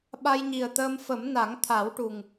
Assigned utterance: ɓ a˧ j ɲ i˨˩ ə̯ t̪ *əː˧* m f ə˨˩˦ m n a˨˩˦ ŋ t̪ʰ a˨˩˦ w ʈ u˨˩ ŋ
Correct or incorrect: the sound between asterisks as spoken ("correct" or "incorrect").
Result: correct